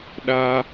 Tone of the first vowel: high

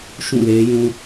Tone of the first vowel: falling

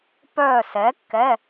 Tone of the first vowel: falling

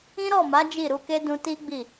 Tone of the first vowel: high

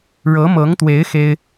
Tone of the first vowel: rising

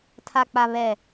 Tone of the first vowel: low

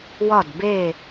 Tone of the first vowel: falling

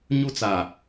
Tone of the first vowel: high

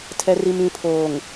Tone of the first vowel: low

